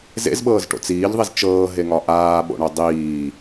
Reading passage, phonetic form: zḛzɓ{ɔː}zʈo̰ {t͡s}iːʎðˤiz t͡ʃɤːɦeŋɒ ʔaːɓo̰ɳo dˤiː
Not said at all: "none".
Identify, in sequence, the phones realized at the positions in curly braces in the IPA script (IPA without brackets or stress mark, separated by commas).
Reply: ɤː, t͡s